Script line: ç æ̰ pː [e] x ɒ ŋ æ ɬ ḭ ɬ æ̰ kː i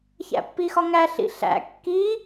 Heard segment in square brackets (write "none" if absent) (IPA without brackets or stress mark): i